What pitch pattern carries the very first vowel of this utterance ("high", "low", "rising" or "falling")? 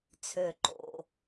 low